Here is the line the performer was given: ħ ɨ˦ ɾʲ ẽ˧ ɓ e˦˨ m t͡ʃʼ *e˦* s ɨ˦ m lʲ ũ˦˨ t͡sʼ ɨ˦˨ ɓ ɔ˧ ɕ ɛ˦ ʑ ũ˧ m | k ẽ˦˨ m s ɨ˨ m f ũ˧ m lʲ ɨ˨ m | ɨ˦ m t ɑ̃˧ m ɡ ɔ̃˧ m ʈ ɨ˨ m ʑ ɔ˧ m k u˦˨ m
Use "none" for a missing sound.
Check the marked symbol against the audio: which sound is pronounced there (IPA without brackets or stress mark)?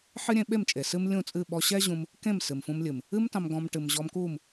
e˨